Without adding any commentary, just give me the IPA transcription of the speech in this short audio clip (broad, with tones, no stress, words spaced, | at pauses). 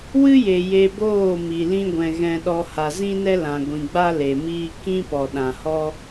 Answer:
wɨ˦je˨ je˧boː˦˨ mi˨lĩ˦ɡʷɛ̃˧ ɣɛ̃˧ɗɔ˧ ha˨zĩ˦nɛ˦lã˨ ɡʷĩ˨ɡ͡ba˦ le˨miː˦ kĩ˦pɔ˨ɗã˨hɔ˦